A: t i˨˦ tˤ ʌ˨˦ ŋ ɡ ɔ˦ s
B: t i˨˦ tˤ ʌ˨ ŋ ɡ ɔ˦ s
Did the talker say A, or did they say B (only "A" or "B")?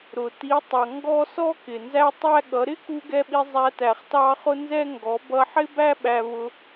B